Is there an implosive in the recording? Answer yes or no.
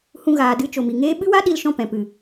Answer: yes